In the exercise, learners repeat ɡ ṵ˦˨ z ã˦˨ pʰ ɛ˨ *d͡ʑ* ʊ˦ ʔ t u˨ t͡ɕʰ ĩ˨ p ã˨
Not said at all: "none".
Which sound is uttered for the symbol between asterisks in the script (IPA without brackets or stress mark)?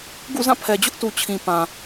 d͡ʑ